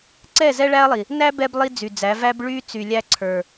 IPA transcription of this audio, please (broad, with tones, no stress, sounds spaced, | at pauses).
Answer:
ǀ ɛ˦˨ z ɛ˦ ɭ æ˦ ɐ̯ lˠ i˨ | n æ˦ b ɛ˦ b lˠ i˦ d͡z y˨ d͡z æ˨˦ v æ˦ b ɭ y˦ t͡s y˨ lʲ æ˦ ǀʰ ə˞˨